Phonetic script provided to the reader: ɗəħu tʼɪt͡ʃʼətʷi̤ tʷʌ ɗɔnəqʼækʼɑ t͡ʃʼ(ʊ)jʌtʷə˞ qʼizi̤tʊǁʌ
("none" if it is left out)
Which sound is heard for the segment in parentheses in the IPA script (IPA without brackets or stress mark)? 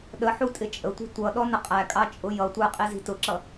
ʊ